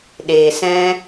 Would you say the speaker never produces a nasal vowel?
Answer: no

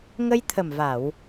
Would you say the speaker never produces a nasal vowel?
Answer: yes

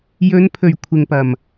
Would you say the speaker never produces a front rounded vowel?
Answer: yes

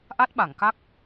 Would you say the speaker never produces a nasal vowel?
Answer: yes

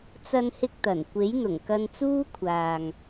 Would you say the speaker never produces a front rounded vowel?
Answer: yes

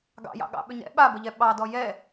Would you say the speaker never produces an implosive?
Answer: no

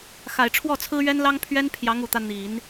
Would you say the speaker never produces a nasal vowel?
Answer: yes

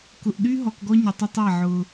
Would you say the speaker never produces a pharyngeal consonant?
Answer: no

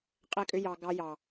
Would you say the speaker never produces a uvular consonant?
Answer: no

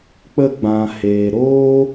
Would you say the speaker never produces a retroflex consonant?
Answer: yes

